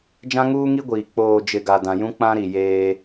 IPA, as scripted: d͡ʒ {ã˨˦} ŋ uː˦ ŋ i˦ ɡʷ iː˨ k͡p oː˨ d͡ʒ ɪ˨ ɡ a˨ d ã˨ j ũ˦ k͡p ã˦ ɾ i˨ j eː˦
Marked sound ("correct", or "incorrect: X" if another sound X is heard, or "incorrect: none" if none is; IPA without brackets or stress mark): incorrect: ã˦